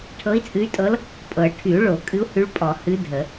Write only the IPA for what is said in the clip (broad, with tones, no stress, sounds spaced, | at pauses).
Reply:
ʈʰ ɤ˧˥ i̯ t͡sʼ ɨ˧˥ y̯ tʼ ɤ˧˥ l | pʼ ɤ˨˩˦ ʈʰ y˨˩˦ u̯ ɭ o˨˩˦ kʼ ɨ˧˥ u̯ h ʉ˧˥ ɭ pʼ ɔ˨˩˦ h ɨ˧˥ dʱ ə˨˩˦